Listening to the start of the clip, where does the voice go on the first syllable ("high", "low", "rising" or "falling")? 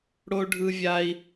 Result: high